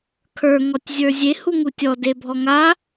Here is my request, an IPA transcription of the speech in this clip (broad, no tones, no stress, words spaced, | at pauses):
kʰə˞ŋɔtʲzʲə˞ zʲe huŋutʲɔ debʱɔŋa